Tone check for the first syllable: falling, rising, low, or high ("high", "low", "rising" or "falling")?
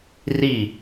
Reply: falling